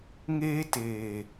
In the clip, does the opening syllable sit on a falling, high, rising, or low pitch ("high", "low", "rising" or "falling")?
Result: high